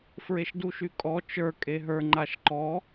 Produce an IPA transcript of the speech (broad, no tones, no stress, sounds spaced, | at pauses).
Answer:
f ɹ e ʃ d u ʃ y kʼ ɔ t͡ʃ ə˞ kʼ e ɦ ə˞ ŋ͡ǃ a ʃ ǃ ɔ